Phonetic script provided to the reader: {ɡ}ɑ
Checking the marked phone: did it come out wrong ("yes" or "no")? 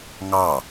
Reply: yes